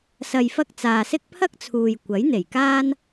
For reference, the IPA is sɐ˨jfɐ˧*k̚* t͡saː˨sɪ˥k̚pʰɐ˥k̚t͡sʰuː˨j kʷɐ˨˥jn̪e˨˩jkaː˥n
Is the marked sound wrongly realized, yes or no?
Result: no